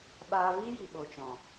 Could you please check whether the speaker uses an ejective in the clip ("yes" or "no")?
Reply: no